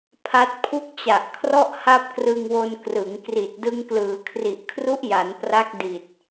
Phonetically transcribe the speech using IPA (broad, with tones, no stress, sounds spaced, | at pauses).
pʰ a˦˥ t̚ pʰ u˥˩ k̚ t͡ɕ a˨˩ ʔ kʰ r ɔ˥˩ ʔ h a˥˩ p̚ k r ɯ˧ ŋ w o˧ n k r ɯ˩˦ ŋ k r i˨˩ t̚ d ɯ˧ ŋ k l ɯː˩˦ kʰ r i˨˩ ʔ kʰ r u˦˥ ʔ j a˩˦ n p r a˦˥ k̚ d i˨˩ t̚